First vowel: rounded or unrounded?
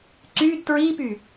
rounded